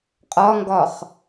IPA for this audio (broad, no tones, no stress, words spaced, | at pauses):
qʼɒŋɡɒχ